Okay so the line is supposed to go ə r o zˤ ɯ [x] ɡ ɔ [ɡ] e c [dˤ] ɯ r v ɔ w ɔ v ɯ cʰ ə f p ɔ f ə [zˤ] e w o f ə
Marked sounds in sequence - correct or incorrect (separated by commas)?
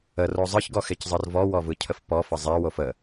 incorrect, incorrect, incorrect, correct